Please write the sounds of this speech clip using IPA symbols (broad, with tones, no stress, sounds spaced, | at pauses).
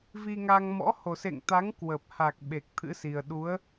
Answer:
v i˧ ŋ a˧ ŋ m ɔ̰˧˥ h o˨˩ s ḛ˧˨ ŋ t̪ a˨˦ ŋ k w ə˨˩ p̚ h a˨˩ k̚ ɓ e˨˩ k̚ t̪ʰ ɨ̰˧˥ s i˨˩ ə̯ ɗ u˨˦ ə̯